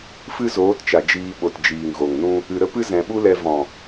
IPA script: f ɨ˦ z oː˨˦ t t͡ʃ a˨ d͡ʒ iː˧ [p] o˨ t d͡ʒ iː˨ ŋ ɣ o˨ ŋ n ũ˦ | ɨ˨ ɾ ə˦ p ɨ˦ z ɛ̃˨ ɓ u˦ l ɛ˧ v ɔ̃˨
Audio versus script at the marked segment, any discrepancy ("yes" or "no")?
yes